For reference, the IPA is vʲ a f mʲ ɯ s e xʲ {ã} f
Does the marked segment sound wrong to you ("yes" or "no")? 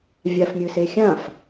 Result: no